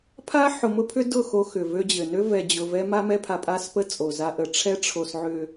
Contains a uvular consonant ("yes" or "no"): no